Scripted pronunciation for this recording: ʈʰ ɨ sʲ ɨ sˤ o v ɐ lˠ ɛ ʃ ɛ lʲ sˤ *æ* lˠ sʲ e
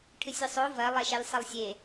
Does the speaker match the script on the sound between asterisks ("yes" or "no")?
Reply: no